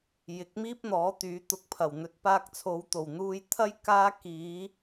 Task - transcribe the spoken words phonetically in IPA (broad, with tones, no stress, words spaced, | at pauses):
jɪ˨˥k̚miː˥p̚ n̪ɔː˨˥t̪yː˨˥t̪ʊ˧k̚pʰɐ˨˩w n̪ɵ˨˥t̚paː˧k̚t͡sʰo˨˧w t̪o˨˩wn̪uː˧jt̪ʰɐ˥j kaː˥ kiː˨˧